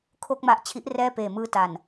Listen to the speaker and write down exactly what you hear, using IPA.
kʰ o˥˩ k̚ m a˦˥ ʔ t͡ɕʰ i˦˥ ʔ r ɛː˥˩ p eː˨˩ m ɯː˧ t a˨˩ n

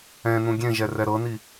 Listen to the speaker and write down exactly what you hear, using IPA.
ɛ̃ n ũ ɡʲ ẽ ʒ ɛ r ɛ ɾ ɤ n i

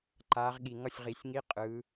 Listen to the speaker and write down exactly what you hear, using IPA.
ǃ aː˨˦ ʁ ɠ i˨˩ ŋ ʌ˥˩ sʲ ʁ i˨˩˦ sʲ ŋ i˧˥˧ qʼ ɯ˨˦

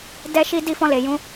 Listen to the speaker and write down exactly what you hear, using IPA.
d ɛ˦ ʃ i˦ d i˦˨ f ɔ̃˧ l e˨ j ũ˨˦

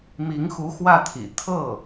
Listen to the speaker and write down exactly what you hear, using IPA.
m i˧˥ ŋ x u˧˥ x w ä˥˩ t̪ʰ ḭ˨˩ t̪ʰ ɤ˥˩

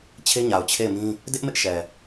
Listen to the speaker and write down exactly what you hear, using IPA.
t͡ɕʰ e˦ ɲ a˨ ʊ̯ t͡ɕʰ e˦˨ ɪ̯ m ĩ˦ | d ɪ˦ ʔ m ɪ˦ ʔ ʃ ɛ˨

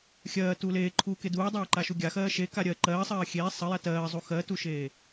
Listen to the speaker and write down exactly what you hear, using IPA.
xʲ ɜː t u l eː ǃʰ uː k e d uː dˤ eː ǃ a ʃ u ɡʲ a x ɜː ʃ e k a ɾʲ ɜ ǃ ɜː sˤ ɜː xʲ eː sˤ ə j a t ɜː zˤ u x ɜ t u ʃ eː

